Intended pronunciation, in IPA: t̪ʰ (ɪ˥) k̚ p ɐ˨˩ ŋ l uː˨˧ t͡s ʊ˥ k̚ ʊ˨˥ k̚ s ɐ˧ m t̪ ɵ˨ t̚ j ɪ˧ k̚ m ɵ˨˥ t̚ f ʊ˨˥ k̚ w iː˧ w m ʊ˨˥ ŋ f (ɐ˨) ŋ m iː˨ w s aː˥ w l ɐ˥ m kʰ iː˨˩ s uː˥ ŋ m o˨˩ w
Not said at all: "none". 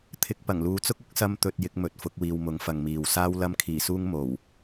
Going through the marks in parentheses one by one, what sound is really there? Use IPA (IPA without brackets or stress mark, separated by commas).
ɪ˧, ɐ˨